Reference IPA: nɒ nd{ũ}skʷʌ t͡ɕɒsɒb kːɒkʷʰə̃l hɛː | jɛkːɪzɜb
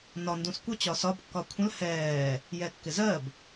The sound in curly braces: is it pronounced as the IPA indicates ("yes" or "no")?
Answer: yes